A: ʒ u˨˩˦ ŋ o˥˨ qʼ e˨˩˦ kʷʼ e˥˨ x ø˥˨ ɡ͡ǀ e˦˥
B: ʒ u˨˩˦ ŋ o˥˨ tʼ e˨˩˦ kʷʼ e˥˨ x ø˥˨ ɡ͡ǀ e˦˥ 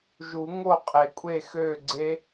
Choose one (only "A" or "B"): A